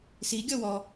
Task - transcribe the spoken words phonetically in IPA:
s i ɡʲ ɔ w ɔ

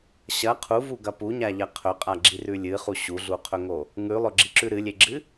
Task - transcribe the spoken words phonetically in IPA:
ɕ ɐ qʰ u v u ɡ ɐ p u ɲ a ʎ ɐ qʰ ɵ qʼ a ɡ͡ǁ i r ʉ lʲ ɨ χ u ɕ u ɮ u qʰ ɵ ŋ o | ŋ ʉ lˠ ɵ ɡ͡ǁ i ǁ ʉ ɾ ɨ lʲ e ɡ͡ǁ ɨ

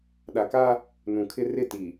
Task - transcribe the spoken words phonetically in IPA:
ɗ a˨ k aː˦ | n ũ˨ kʰ ɪ˦ r ɪ˦˨ t iː˨

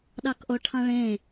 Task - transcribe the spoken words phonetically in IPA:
ɗ ɑ k ʔ o ʈʰ ɑ̃ ɭ ẽ

